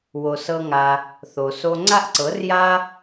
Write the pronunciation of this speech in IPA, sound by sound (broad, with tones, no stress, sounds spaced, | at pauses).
w o˧ s ɤ˦ ŋ a˧ | θ o˨ s o˧ ŋ͡ǀ a˦ ʔ ǀ ɤ˨˦ r j a˦